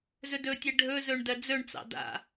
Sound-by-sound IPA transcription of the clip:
z ɵ d ɵ tʲ ɛ ɖʱ ɵ z ɵ ɳ d ɜ d͡z ɵ ɳ t͡s ɑ̰ d a̰

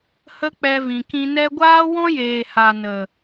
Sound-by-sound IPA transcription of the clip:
h ə˦ k͡p ɛ˧ v ĩ˨ k ĩ˧ n ɛ˦ ɡʷ aː˦ w ɔ̃˦ j eː˨ h a˨ n ə˨

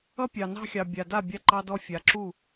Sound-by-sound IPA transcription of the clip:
ʌ˦ pʲ ɑ˨ n ɑ̤˦ xʲ ɑ˨ bʲ a˨ d a˦˨ bʲ a˦ ǃ ɑ˦ d ɔ˦ fʲ a˨ ǁ u˦˨

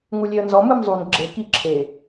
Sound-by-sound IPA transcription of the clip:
ŋ u lʲ e ə̯ n z ɔ m ɯ m zˤ u n ɡ͡ǁ e k i ǁʰ e

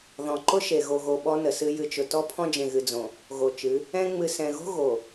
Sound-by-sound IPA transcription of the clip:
ð ɔ̃˨ ǃ ʊ˦ ʃ e˨ ɣ o˨ ɣ o˨ ɓ ɔ˦ n ə˨ s ɨ˦ j ɨ˨ t͡ʃ ʊ˨ t ɔ˦ pʰ ɔ̃˦ d͡ʒ ẽ˨ ɣ ɨ˨ d͡z õ˨ | ɣ o˨ t͡ʃ ɨ˨˦ | ɛ̃˦ ŋ͡m ɨ˨ s ɛ̃˨ ɣ o̤˦ ɣ o˨

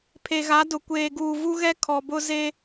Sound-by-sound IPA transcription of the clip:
pʰ e˨ ɣ a˨˦ d ʊ˨ kʷ eː˨ ɡ uː˨ v u˦ ɣ ɛ˦ kʰ ɔ˨ b ʊ˦ z e˦

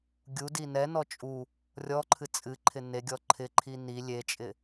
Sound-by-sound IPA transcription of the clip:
ɡʲ u d i n ɛ n ɔ t͡ʃʼ u | rʲ ɔ ǃʰ ɨ t͡sʼ ɨ ǃʰ ɪ n e ɡʲ ɔ ǃʰ ɪ ǃʰ i n i lʲ e t͡ʃʼ ɪ

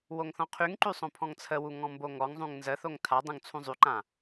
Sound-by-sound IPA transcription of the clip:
w o ŋ θ ɔ̃ qʰ y ŋ ǃ y sˤ õ pʰ ɔ̃ ŋ t͡sʰ ə w u ŋ ɔ̃ m b o ŋ ɔ ŋ zˤ ũ ŋ n z ə θ o ŋ tʰ a dˤ ũ ŋ t͡sʰ ũ zˤ y ǃ ã

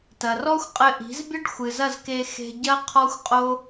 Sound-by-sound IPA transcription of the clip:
t ɐ˨ r ɔ˦ xʷ qʼ ɘ˧ ʔ i̤˨˦ z bʲ ɐ˦ ɖ xʷ ɨ˨ z ɐ˦˨ z k e˧ x e̤˧ ɟ ɐ˦ qʰ ɔ˦ xʷ qʼ o˦

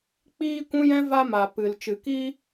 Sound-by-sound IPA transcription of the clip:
k͡p iː˧ kʷ ũ˦ j ɛ̃˦ v a˧ m a˨ p ɨ˨ l t͡ʃ ɨ˨ k iː˧

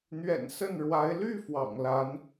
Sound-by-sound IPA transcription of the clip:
n̪ ɥ ɛ̰˨˩ n s ə˥˩ n ɻ w a˧˥ ɪ̯ l y˥˩ f w ɑ̰˨˩ ŋ l a˧˥ n

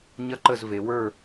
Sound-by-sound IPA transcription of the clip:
ɲ ɐ˥˨ ǃ ə˥˨ z v e˩˧ w ə˞˥˨

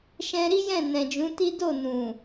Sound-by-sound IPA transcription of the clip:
ʃ ɛ̃˧ ɾ i˦ j ɛ̃˦˨ n ɛ̃˨ d͡ʒ ũ˨˦ t i˦ d o˦˨ n ũ˨

